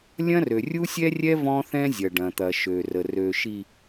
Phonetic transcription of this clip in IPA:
lʲ ɐ̃˦ r ø˨ rʲ u˦ sʲ ɛ˦ rʲ ɛ˦ v ɔ̃˦ θ ɛ̃˦ zʲ ɐ˨ ɖ ɐ̃˨ t̪ ɐ˨ ʃ ø˨ r ə˨ r ø˨ ʃ i˨

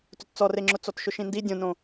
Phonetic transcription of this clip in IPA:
t ʊ t t͡s ɔ r e ŋ͡ǁ ʊ t͡s ɔ t ʃ ʊ ʃ ĩ n d i dʲ õ n õ

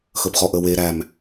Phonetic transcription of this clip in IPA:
x əː p χ ɔ ʔ əː w eː ɾ æ m

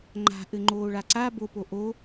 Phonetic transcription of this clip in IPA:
ŋ͡ǃ a̤ ʔ ɘ ŋ͡ǃ oː ɭ a ǀ a b o p o ʔ o

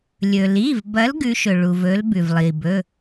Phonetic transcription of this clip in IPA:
lʲ ɵ˩ l i˩˧˩ v b ɐ˨˦ l ɡ ʉ˨˦ ʃ ɵ˩ ɭ u˩ v ɵ˨˦ l b ʉ˩ v lˠ i˩ b ɵ˩˧˩

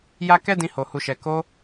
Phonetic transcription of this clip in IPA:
j a˦ k ɛ˦ d ĩ˧ h o˨ h u˨ ʃ ɛ˨ k o˧

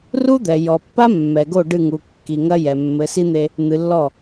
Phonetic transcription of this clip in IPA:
r u˦ d̪ ɛ˨ j ɔ˨ pː a˦ mː ɛ˨ ɡ o˦˨ ɖ ɨ˦˨ ŋ u˨ kː i˨ ŋ ɐ˦ j ɛ˨ mː ɘ˨˦ s i˦ n̪ e˦ | n̪ ɨ˨ lː ɔ˦˨

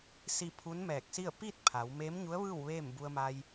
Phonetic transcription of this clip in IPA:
s i˥˨ pʰ u˧˥ n m ɛː˧˩ k̚ s i˥˨ ə̯ p i˥˨ t̚ pʰ a˩˧ w m eː˧˥ m ɲ u˧˥ ə̯ ʋ ɯː˥˨ w ʋ eː˥˨ m b u˧ ə̯ m a˧ j

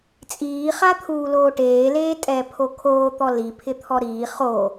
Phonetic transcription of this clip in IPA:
t͡sʼ iː χ a t̪ʰ uː l oː ʈ eː l eː tʼ ɛ pʰ o kʰ oː t̪ ɔ l i pʰ ɪ t̪ʰ ɔ ɾ iː χ o

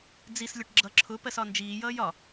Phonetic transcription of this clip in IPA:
d͡z i s lʲ ɒ ʈ ɡ͡ǁ ʌ ǁʰ ʊ p ɜ s ɒ n d͡ʒ iː j ʌː j ɒ

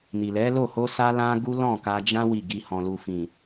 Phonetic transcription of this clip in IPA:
n i˨ l ɛ˨˦ l o˦˨ h o˧ s a˧ l ã˦ ɡ u˦ l ɔ̃˦˨ k a˧ d͡ʒ ã˦ w i˦˨ ɡ i˧ h ɔ̃˨ l u˨ f ĩ˨

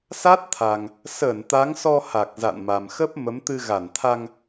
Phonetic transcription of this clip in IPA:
s a˦˥ t̚ t̪ʰ a˨˩ ŋ | s əː˧˩ n t̪ a˨˦ ŋ s ɔ˧ h a˨˩ k̚ z a̰˧˨ n m a˨˩ m x ə˦˥ p̚ m ə˨˦ m t̪ ɨ˧ ɣ a˧˩ n t̪ʰ a˧ ŋ

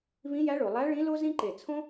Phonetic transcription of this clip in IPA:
β ĩ˧˥ j æ˧˥ ɭ o˩ lˠ æ˧˥ ɭ ĩ˧˥ l o˥ z ĩ˥ ǃ e˧˩ t͡sʰ õ˥

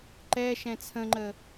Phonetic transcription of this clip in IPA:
ǃ ɛ ʃ ɛ̃ t͡sʰ ə̃ ŋ͡ǃ ə

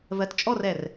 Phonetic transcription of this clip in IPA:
v ɜ t t͡ʃʼ ɔ r ɛ r

